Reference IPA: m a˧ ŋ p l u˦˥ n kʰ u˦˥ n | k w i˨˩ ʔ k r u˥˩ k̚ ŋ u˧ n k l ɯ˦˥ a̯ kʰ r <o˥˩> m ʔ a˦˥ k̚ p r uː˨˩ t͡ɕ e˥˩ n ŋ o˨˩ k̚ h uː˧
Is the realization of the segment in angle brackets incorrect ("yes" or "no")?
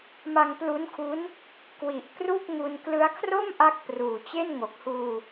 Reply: no